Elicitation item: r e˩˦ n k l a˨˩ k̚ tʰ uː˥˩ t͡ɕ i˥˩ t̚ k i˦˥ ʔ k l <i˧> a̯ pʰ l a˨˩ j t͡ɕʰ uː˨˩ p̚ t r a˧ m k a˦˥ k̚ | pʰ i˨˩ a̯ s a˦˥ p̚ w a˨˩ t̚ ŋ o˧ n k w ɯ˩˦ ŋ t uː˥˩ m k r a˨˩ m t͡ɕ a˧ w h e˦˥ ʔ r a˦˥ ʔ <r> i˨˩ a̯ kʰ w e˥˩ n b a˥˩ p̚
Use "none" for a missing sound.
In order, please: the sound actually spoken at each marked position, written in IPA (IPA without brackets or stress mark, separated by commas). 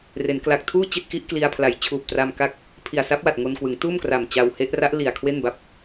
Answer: i˧, l